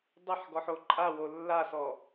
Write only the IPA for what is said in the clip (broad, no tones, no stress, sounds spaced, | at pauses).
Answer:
dˤ ɐ ħ ɡ ɔ ħ o ǃʼ a w o lː a s ɔ